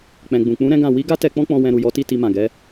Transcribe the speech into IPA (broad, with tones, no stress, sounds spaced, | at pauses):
k͡p ɛ̃˨ ɡ͡b ũ˨ k͡p ũ˨˦ ɾ ɛ̃˦ ɡ ã˦˨ w i˨˦ ɡ a˦ t ɛ˧ k͡p ɔ̃˦ k͡p ɔ̃˧ w ɛ̃˧ ɾ u˨ j ɔ˨˦ t i˦˨ t i˧ m ã˨ ɡ ɛ˨˦